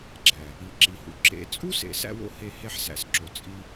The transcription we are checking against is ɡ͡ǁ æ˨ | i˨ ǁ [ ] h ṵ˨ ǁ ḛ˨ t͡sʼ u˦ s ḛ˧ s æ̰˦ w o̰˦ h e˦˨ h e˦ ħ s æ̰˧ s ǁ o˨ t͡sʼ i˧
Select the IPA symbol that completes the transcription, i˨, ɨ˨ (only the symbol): i˨